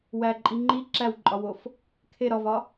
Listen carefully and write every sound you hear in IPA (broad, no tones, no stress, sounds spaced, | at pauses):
w æ ǃʼ i ŋ͡ǃ i ǁ æ w ǃʼ ɒ w o f | kʰ e ɾ ɒ v ɒ